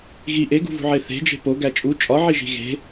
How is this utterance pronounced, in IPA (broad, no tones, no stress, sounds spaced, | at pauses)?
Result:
ɣ i ʔ e ɡ ṳ v ṳ ʕ e θ e̤ d͡ʒ e̤ p o ɡ æ t͡ʃʼ u t͡ʃʼ ɒ ʕ i ʒ i̤ ɣ e̤